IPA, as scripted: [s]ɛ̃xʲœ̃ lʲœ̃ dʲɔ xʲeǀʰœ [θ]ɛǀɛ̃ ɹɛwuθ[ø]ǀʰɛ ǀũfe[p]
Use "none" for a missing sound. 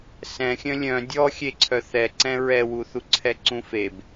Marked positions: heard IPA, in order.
s, θ, u, b

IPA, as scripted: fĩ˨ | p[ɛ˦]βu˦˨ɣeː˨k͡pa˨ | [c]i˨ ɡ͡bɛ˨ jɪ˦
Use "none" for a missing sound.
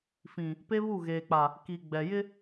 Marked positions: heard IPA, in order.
e˦, k

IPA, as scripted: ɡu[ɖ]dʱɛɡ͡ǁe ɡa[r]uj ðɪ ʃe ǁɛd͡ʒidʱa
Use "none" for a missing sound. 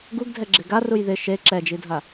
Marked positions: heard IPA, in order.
ɡ, r

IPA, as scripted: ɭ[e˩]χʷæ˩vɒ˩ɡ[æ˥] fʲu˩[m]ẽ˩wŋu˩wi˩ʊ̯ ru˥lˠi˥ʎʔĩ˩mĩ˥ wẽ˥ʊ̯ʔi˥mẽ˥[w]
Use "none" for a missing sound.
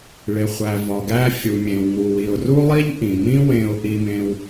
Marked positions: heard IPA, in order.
e˩, æ˥, mʲ, w

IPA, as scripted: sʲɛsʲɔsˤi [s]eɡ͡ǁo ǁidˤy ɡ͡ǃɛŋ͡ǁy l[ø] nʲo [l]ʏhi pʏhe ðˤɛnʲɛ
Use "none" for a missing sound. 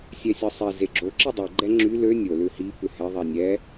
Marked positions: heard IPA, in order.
z, ø, l

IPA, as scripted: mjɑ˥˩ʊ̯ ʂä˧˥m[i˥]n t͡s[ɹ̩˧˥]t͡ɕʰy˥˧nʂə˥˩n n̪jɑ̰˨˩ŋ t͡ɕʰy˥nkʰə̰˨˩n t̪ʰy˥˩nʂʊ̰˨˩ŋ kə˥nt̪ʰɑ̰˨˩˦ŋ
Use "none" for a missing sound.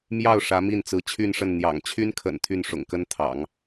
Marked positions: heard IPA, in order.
i˥˩, ɹ̩˧˥

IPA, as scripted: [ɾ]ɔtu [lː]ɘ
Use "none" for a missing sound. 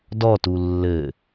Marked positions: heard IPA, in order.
d, lː

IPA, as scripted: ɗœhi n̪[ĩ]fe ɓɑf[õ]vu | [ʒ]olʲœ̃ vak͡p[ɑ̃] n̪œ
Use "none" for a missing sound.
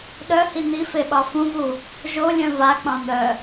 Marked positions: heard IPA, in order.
i, ũ, ʒ, ɑ̃

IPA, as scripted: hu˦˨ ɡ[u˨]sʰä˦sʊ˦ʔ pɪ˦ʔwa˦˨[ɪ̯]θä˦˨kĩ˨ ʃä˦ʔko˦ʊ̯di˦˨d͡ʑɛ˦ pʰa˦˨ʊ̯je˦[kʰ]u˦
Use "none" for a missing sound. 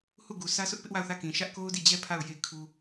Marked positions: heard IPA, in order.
u˨, ʊ̯, kʰ

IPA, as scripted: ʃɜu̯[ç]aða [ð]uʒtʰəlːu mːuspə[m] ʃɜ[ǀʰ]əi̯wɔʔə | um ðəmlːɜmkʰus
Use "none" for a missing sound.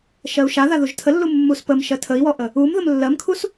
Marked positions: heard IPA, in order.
ʃ, ð, m, tʰ

